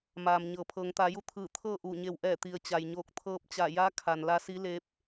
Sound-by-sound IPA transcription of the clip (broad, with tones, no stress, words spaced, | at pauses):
maː˩m ɲɤː˩pʰɤː˩˧ŋt̪aː˩˧ju˧˥ t̪ʰɯː˧˩t̪ʰɤː˥˨ʔuː˧˩ɲe˧˩w ʔɛː˧˩t̪i˩ə̯ t͡ɕa˩jɲoː˧˩k̚ t̪ʰɤː˧p̚t͡ɕa˧˩ja˧˥ kʰa˩n la˧˥si˧˥ le˧˥p̚